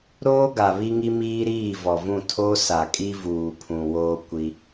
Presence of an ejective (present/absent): present